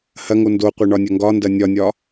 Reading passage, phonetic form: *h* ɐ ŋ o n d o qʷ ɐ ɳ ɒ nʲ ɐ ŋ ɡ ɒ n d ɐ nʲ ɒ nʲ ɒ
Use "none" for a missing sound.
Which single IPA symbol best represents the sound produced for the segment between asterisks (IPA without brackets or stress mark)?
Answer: h